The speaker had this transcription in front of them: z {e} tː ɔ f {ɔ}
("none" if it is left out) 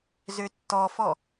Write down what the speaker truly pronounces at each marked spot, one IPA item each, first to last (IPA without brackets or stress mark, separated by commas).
ø, ɔ